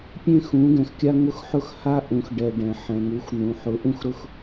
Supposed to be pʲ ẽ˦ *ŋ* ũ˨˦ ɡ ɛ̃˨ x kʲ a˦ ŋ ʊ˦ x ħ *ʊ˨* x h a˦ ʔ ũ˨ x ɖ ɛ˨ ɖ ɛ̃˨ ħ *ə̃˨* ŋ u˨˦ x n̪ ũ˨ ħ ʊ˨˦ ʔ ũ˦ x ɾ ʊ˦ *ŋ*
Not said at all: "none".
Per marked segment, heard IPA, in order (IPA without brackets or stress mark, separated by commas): x, ʊ˦, ɛ̃˨, x